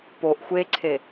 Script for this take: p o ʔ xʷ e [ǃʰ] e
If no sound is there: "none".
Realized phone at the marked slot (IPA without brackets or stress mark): ǀʰ